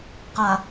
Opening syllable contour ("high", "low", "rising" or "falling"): low